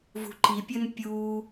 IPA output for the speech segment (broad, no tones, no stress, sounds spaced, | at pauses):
v ṳ ǃ i pʲ ɵ n pʲ u